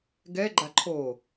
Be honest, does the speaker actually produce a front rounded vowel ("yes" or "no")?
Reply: no